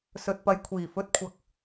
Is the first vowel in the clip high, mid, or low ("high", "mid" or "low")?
mid